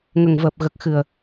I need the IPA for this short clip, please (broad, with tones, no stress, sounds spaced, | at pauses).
ŋ ə˨˩ ŋ v əː˨˩ p̚ ɣ ə˨˩ k̚ x ɨ˨˩ ə̯